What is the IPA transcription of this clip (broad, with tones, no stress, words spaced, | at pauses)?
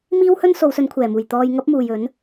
miː˥whɵ˥n so˨˧wsɵ˨˧nkʷʰɛː˨˩muː˨˩j t̪ɔː˧j ŋɐ˥p̚muː˨jɵ˨˥n